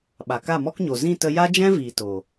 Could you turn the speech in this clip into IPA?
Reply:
ɓ a˨ k a˦˨ m ɔ˦ k ɲ o˨ z ĩ˦˨ t ə˧ j a˦ d͡ʒ ɛ̃˦ v iː˨ t o˨

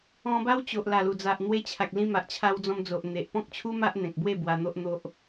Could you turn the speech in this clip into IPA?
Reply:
ɔ̃˧ b a˦ w t͡ɕ o˨ ʔ l a˨˩ l u˨˩ d͡z a˨ ʔ n̪ w e˧ t͡ɕʰ a˨ k̚ l ĩ˧ m a˨ ʔ t͡ɕʰ a˧ w d͡z ɔ̃˧ m d͡z o˨ ʔ n̪ e˨ ʔ p ɔ̃˦ k̚ t͡ɕʰ u˦ m a˦ ʔ n̪ ẽ˨ k̚ b w e˥˧ b w a˧ n̪ o˦ ʔ n̪ o˦ ʔ

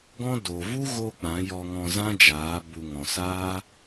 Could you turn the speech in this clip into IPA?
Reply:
ɡ ɔ̃˦ d o˨ v u˦ ɣ o˧ k͡p ã˨˦ j ɔ˧ ŋ ɔ̃˧ z ã˦ d͡ʒ aː˨˦ b u˨ ŋ ɔ̃˨ s aː˦

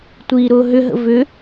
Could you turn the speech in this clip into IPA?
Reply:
tʷ iː ɾ ʊː ɦ ʏ ɦ ə̰ v ʏ

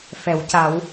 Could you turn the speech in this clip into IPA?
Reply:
f ɛ˨˩˦ w c a˨˩˦ w

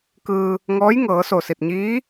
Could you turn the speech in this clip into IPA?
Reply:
k ɯː˧ | ŋ ɔː˧˥ j ŋ ɤː˩˧ s o˧˩ s i˧˩ t̚ ɲ iː˧˥

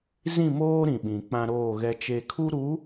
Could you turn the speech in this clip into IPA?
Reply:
z ĩ˦˨ m oː˦ ɾ ĩ˨ ɓ ĩ˨ k͡p ã˦ ɾ oː˦˨ ɣ ɛ˦ t͡ʃ e˦ kʰ u˦ ɾ u˨˦

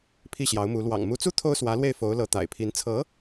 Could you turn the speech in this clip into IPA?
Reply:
pʰ i˥˩ ɕ j ɑ˧˥ ʊ̯ m u˧˥ l w ɑ̰˨˩ ŋ m u˧˥ t͡s u˥ t̪ʰ o˥ ʊ̯ s w ä˧˥ l w e˥˩ ɪ̯ f o˧˥ ʊ̯ l ɤ˧˥ t̪ a̰˨˩ ɪ̯ pʰ i˧˥ n t͡sʰ ɤ˧˥

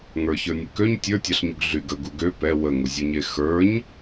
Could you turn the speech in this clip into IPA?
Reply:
ŋ ə˞ ç ə˞ nʲ ə k ø ɲ tʲ ə˞ tʲ ɑ ɬ ɲ u ɡ ɮ y ɡ ə ɡ u ɡ ø p ɛ w ə ŋ u zʲ u ɲ e x ə˞ ɲ

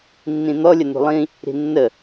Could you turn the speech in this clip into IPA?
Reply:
nː ĩ n̪ ɔ lʲ ə n ṳ lˠ ĩ | ɾ i̤ nː ə

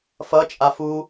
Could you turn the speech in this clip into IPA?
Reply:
f ʌ t͡ʃʼ a f u

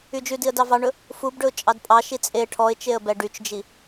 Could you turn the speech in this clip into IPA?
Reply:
y d͡ʒ ʉ d i ə̯ d ɑ v ɑ ɳ ɵ | f u b ɖ ɵ ʊ̯ t͡ʃʼ ɑ d pʼ ɑ ʃ i t͡sʼ e ʈʰ ɔ ɪ̯ t͡ʃ e ə̯ b ɛ ɖ y t͡ʃ d͡ʒ i

